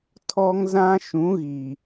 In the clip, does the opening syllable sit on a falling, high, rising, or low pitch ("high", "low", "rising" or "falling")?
high